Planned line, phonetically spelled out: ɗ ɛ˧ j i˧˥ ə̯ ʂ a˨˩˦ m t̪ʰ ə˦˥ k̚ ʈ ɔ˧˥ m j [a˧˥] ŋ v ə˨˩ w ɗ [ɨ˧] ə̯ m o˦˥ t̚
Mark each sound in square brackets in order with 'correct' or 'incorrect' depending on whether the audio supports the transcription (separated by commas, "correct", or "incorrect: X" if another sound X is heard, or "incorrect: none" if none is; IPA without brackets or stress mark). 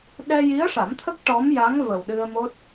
correct, correct